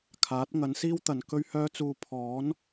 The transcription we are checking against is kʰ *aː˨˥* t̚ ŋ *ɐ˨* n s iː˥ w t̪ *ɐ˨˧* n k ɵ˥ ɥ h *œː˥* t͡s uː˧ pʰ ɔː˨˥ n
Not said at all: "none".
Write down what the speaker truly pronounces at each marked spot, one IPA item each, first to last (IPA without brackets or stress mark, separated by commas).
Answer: aː˨˥, ɐ˨˥, ɐ˨, œː˥